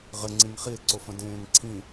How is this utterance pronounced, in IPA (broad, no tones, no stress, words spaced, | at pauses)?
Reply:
ʁɘŋ͡ǀĩŋ χie̯ǀofə̃ dẽːŋǀʰĩ